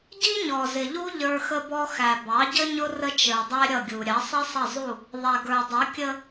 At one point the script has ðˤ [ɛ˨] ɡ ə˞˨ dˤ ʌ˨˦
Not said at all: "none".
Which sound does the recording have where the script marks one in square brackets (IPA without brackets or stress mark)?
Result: ɛ˨